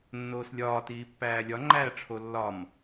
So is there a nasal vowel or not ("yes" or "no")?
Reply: no